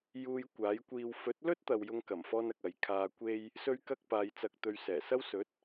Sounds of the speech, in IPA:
juː˧j kʷaː˨˥jkʷiː˧w fɵ˨˥t̚lɵ˥t̚t̪ɐ˨w jʊ˧ŋkɐ˨˩mfɔː˧nɐ˨k̚ ɐ˨j kʰaː˧kʷe˥j | sɵ˥ɥkɐ˥k̚ paː˨˧jt͡sɐ˧k̚t̪ɵ˧ɥ sɛː˨˩sɐ˥wsɵ˨˥t̚

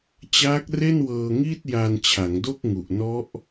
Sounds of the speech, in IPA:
t͡ɕaː˦˥k̚re˥˩nwɤː˧ŋi˥˩t̚ ja˧nt͡ɕʰa˩˦ŋdo˥˩k̚ŋu˨˩ʔ nɔ˦˥ʔ

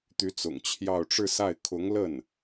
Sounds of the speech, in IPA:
t̪y˧˥t͡sʊ̰˨˩ŋt͡ɕʰjɑ˥˧ʊ̯ ʈ͡ʂɻ̩˥˧sa˥˩ɪ̯ kʰʊ˧˥ŋlə˥˩n

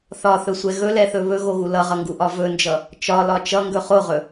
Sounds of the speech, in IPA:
θɒθɵsʷɛ ɣɵlɛθɵ βɵɣoɣu lʌʁʌŋɡuʔɒ vɵnd͡ʒʌ | t͡ʃɒlɒ t͡ʃʌŋɡɵ χoʁɵ

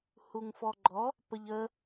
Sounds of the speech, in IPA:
huŋfɔɡ͡ǃɔ | pəʎə

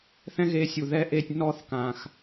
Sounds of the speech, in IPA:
θɛ̃˦ɣe˧ sʲu˨ðɛ˦ʔe˦˨tʲ nɔ˦θkã˨x

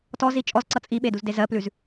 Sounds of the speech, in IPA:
tɔzi t͡ʃʼɔzǀʌ t͡sʼiɓeduzde zɜplʉz

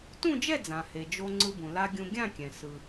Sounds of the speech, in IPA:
tũ˥˧d͡ʒɛ˥˧d͡zã˩he˩ d͡ʒo˧ ŋ͡ǀɯ˧bũ˩ la˧ ɡʲũ˧ ɡʲã˥˧kʲɛ̃˩ sɯ˩

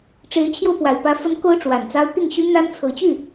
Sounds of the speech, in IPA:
ʈ͡ʂe˧˥ɪ̯t͡ɕʰjo˧ʊ̯ pwa˨˩ɪ̯pä˧˥ fə˧˥n ko˥ʊ̯ʈ͡ʂwa˨˩nt͡sɑ˥ʊ̯ t̪i˥˩ŋɕy˥ n̪a˥n t͡sʰɤ˧˥t͡ɕy˥˩

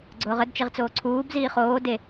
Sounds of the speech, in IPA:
ɡ͡ǀʊːʁədt͡ʃeʁ t͡soːǀʰuːbziː χoː de

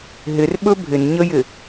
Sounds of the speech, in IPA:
ɦɪrɓɵ bʱɪnɲəjɪ

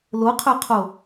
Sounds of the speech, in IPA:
loqʰɵqʰo

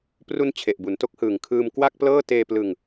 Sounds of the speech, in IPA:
pru˧n t͡ɕʰe˨˩ʔbu˩˦nto˦˥k̚hɯː˨˩ŋ kʰɯː˧mkwa˥˩k̚ plɤː˥˩ teː˧plɯ˧ŋ

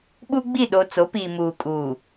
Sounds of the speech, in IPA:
ɓu˦ɡ͡bi˦˨ ɗo˨ t͡so˨˦piː˨ muː˨kʼuː˨

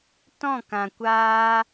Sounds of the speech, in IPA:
tɔ̃˦˨kã˨kʷaː˧

